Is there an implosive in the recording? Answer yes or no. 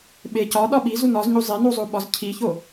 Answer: yes